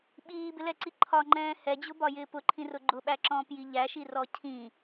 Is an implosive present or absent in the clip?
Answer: present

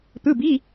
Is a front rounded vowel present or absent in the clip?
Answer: absent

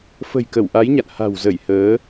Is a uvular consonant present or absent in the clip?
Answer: absent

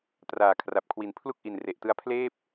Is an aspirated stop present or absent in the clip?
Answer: present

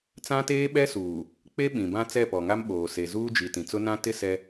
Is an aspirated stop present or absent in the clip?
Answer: absent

